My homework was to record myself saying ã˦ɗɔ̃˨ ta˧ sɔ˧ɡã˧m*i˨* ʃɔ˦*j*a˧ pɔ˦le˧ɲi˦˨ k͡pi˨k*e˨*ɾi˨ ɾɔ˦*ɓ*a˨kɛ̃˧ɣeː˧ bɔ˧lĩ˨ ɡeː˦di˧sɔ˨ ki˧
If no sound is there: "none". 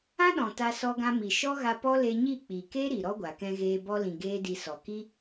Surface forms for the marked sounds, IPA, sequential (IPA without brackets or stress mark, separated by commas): i˨, ɣ, e˦, ɡʷ